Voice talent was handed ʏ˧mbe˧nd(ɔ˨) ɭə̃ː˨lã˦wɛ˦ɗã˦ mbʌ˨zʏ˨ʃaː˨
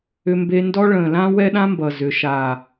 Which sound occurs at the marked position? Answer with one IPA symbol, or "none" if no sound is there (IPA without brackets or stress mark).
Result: ɔ˦